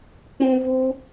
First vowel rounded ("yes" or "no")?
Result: yes